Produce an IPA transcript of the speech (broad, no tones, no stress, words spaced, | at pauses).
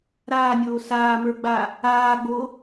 ɾaːnʲoː saːmə˞ɡ͡ba | aːɡ͡bo